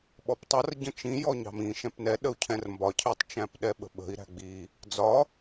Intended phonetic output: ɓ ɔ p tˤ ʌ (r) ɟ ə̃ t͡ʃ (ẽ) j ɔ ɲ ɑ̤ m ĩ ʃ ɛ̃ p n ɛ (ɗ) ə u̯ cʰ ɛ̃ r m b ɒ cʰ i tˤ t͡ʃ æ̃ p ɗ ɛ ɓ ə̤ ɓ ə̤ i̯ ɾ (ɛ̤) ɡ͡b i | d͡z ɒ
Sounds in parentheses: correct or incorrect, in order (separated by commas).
correct, incorrect, correct, incorrect